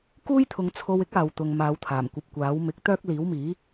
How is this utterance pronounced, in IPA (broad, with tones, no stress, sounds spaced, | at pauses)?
k uː˥ j t̪ʰ ʊ˨ ŋ t͡sʰ o˧ w ɪ˥ k̚ aː˨ w t̪ ʊ˨ ŋ m aː˨˧ w t̪ʰ aː˨˩ m kʷ ɐ˧ p̚ kʷ aː˨˥ w m ɪ˨˥ k̚ t̪ œː˥ k̚ l iː˨˥ w m iː˨˥